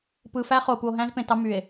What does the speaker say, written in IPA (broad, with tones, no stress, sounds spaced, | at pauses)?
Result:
p ɯː˨ f æ˦ χ o˨ p u˨ o̯ ɦ æ̃ː˦ z p ẽ˨ t ɑ˦ m y˨ e̯